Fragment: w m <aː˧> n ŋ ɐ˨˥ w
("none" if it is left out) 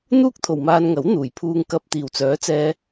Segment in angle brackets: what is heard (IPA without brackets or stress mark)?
aː˧